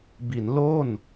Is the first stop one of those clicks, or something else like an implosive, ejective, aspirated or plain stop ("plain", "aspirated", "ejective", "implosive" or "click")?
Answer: plain